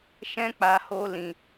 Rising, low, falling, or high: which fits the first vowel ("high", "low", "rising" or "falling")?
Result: high